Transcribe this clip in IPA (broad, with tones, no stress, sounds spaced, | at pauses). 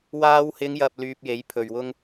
w aː˧ w h ɪ˨˧ ŋ j ɐ˨ p̚ l yː˧ p̚ j e˨˥ j pʰ ɵ˨ ɥ w ʊ˥ ŋ